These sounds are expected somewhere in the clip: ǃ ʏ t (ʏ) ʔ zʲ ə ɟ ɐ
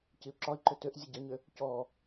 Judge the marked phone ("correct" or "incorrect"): correct